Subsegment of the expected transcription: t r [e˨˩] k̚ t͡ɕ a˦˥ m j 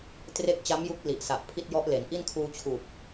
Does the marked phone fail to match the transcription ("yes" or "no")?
yes